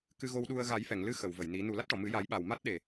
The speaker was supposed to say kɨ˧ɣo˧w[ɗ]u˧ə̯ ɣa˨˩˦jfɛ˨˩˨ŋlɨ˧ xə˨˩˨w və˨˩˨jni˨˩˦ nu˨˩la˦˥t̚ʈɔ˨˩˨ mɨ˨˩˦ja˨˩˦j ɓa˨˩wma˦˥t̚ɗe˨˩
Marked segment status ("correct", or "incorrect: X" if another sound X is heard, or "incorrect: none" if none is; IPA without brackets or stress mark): correct